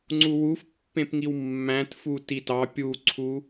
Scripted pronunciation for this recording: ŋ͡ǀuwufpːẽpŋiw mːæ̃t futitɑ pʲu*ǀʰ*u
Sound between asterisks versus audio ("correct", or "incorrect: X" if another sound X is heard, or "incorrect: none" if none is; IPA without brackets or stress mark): correct